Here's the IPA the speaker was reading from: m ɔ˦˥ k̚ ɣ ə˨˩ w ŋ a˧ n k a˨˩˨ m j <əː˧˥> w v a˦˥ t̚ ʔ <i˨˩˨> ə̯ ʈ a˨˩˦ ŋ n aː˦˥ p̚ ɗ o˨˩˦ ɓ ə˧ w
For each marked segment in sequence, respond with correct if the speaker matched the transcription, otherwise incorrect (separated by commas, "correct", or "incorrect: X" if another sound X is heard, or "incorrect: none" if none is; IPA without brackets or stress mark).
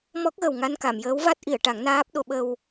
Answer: correct, correct